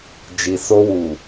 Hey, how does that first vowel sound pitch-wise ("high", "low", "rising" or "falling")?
low